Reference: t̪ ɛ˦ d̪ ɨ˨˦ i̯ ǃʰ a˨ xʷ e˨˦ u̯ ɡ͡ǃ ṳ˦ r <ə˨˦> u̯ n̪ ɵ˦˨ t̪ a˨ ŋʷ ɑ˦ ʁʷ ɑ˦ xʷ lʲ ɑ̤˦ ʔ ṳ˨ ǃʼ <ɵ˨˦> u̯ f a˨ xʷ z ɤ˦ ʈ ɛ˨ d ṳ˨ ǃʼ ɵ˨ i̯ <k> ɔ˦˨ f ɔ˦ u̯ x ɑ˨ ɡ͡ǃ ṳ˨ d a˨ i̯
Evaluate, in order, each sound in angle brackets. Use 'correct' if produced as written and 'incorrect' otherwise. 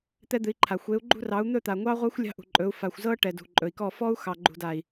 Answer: incorrect, correct, correct

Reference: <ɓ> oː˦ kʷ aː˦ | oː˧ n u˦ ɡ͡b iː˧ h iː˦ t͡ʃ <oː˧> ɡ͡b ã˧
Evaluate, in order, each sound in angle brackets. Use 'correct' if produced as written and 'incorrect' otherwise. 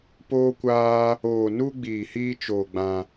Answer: incorrect, correct

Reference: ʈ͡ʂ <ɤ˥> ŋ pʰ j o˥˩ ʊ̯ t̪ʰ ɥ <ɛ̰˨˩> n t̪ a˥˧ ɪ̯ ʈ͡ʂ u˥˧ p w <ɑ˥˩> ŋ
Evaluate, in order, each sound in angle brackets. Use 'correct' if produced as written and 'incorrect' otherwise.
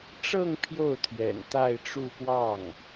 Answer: incorrect, correct, correct

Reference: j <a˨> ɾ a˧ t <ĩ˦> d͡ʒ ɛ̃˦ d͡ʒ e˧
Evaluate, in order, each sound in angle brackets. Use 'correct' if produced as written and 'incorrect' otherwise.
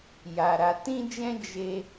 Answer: incorrect, correct

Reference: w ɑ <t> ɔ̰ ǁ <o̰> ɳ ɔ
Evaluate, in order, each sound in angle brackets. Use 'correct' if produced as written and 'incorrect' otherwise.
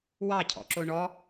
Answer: incorrect, incorrect

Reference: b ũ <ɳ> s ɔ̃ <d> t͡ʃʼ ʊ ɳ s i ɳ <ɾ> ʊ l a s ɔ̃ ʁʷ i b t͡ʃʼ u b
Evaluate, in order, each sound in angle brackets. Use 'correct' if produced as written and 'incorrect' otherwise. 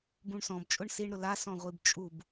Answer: correct, incorrect, correct

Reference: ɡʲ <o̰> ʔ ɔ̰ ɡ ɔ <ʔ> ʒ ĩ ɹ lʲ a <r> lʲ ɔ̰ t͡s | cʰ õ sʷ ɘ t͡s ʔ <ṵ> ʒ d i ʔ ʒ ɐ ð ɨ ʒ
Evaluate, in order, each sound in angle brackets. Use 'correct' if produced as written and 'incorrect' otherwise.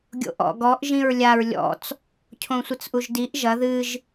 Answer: correct, correct, incorrect, incorrect

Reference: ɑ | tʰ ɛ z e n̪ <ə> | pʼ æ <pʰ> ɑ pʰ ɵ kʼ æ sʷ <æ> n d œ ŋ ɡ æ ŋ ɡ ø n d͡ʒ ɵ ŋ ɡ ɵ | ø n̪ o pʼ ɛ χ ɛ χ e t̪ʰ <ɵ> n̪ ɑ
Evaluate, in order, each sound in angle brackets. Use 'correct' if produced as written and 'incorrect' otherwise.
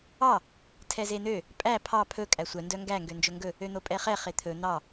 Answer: incorrect, correct, incorrect, correct

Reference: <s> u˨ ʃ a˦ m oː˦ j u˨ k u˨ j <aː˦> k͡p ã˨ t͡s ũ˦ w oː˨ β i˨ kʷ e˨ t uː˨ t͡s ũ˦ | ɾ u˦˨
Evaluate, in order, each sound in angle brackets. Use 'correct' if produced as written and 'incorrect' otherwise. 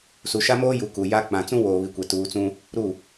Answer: correct, incorrect

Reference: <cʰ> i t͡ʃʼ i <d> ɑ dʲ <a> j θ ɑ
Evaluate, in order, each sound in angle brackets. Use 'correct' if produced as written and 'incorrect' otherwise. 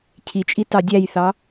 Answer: correct, incorrect, incorrect

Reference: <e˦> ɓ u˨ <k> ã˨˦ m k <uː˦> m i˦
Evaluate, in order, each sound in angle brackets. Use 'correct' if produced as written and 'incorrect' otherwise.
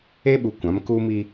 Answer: correct, incorrect, correct

